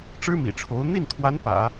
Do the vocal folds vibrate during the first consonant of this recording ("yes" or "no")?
no